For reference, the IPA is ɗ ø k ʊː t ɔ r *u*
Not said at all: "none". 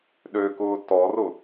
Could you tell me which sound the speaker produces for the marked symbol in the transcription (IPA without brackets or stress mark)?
ʊ